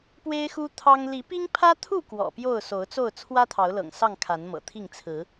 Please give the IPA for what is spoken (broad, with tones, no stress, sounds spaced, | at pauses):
p w e˦ ɪ̯ x u˦ t̪ʰ ɑ˦ ŋ l i˨˦ p i˦ ŋ pʰ ä˦ t̪ʰ u˥˨ k w ɔ̰˨˩ p j o˥˨ ʊ̯ s o˨˦ ʊ̯ t͡s o˥˨ ʊ̯ t͡sʰ w ä˦ t̪ʰ ɑ˨˦ ʊ̯ l ɤ̰˨˩ ŋ s ɑ˥˨ ŋ kʰ a˨˦ n m ɤ̰˨˩ t̪ʰ i˥˨ ŋ t͡sʰ ɹ̩˨˦